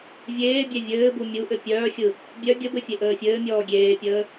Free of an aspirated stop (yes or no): yes